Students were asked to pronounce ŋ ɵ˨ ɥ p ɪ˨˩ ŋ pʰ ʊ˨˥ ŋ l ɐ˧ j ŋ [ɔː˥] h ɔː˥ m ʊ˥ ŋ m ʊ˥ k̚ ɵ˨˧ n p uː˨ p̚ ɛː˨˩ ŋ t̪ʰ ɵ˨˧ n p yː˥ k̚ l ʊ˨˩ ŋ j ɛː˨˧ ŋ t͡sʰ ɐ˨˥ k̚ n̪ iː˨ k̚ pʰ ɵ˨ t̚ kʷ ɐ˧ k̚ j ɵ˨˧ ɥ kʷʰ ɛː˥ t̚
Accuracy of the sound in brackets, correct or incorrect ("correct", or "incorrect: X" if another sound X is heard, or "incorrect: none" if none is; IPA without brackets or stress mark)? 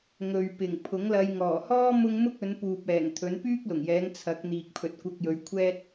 incorrect: ɔː˨˩